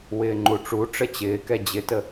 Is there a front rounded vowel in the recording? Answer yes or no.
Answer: no